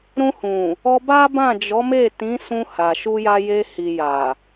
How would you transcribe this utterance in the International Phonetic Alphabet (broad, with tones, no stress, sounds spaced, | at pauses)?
ɾ ũ˧ h ũ˨ | ɔ˧ b a˦ b ã˦˨ d͡ʒ ɔ˨˦ m e˦˨ t ĩ˨˦ s ũ˧ h a˨ ʃ u˧ j a˧ j e˧ h i˨ j a˨